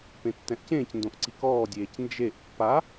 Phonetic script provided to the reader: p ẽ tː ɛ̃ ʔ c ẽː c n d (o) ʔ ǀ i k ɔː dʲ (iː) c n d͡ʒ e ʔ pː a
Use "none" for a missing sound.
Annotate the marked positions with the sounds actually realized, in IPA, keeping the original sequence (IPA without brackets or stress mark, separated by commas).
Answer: õ, eː